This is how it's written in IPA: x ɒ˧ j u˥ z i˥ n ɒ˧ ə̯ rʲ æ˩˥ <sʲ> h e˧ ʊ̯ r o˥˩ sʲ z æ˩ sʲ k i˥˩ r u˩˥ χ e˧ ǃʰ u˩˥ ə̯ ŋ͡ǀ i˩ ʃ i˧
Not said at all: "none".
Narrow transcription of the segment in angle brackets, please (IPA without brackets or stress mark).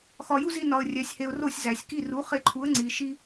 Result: sʲ